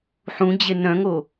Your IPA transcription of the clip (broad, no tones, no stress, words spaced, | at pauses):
ħũd͡ʑe nœ̃ŋo